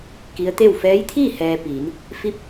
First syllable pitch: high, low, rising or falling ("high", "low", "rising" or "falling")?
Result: rising